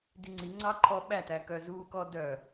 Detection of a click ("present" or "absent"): present